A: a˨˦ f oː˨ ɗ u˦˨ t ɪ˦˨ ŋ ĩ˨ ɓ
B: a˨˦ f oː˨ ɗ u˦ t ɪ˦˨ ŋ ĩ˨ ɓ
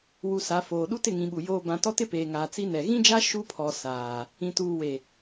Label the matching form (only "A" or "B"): B